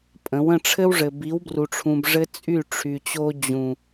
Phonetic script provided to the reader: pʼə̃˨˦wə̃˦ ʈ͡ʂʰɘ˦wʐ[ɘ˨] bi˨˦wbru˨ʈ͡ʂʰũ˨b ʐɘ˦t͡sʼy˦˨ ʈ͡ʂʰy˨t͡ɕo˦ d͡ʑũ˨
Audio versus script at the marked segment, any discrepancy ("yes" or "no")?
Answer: no